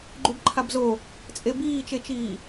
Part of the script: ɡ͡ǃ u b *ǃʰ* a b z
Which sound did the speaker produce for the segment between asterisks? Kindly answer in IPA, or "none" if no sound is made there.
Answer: ǃʰ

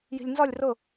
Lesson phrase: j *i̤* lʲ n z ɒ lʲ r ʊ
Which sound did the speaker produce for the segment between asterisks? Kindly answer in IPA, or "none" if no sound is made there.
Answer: i̤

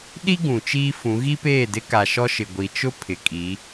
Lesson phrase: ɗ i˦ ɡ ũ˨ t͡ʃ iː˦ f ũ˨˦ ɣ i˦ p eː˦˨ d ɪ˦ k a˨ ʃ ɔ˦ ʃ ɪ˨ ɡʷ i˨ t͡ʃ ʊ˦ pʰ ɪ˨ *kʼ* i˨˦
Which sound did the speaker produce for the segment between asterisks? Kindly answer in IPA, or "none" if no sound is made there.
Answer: kʼ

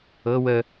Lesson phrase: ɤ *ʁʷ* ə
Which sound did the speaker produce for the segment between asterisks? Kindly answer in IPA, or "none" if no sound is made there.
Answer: w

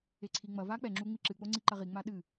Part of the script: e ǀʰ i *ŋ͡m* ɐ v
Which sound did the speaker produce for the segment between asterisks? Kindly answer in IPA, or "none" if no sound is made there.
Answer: ŋ͡m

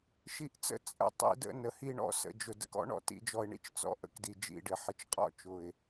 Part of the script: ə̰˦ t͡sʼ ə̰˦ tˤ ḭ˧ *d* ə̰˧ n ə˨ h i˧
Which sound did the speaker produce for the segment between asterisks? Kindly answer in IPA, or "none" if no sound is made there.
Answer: d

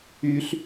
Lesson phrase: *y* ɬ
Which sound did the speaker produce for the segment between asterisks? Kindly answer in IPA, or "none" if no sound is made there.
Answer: y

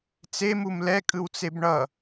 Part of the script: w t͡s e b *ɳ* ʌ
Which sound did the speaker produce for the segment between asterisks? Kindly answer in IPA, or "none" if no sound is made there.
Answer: ɳ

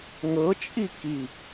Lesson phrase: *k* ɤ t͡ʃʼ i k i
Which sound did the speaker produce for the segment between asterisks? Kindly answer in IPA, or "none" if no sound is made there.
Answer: ŋ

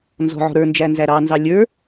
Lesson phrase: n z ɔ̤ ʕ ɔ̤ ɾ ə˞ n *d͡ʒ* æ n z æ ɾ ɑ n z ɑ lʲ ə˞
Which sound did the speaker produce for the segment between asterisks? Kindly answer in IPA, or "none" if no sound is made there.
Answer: d͡ʒ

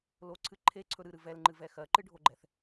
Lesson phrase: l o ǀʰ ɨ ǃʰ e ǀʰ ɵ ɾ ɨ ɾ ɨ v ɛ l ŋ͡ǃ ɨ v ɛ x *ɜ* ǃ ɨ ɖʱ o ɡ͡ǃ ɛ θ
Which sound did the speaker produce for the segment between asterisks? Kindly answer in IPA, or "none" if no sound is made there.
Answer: ɜ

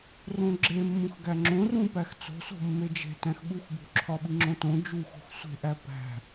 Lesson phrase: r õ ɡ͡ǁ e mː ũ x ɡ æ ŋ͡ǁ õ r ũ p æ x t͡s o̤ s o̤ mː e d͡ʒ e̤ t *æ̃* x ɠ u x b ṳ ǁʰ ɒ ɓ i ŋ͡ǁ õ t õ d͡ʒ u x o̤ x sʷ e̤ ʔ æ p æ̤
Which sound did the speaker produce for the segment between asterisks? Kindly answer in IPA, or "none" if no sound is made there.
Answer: æ̃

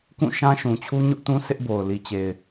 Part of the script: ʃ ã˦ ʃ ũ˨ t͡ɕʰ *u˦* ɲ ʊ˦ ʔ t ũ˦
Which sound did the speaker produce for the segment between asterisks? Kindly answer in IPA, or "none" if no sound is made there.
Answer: u˦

